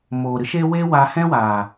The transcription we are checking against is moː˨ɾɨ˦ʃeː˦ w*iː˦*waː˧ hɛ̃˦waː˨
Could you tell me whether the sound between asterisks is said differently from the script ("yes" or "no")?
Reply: yes